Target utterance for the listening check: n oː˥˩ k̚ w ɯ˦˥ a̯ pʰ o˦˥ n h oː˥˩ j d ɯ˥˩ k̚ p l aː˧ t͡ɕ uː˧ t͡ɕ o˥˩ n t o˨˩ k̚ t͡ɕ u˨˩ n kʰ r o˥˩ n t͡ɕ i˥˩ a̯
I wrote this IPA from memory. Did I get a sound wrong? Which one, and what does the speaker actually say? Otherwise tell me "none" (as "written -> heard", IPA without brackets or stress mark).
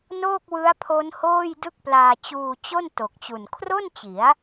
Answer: i˥˩ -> i˩˦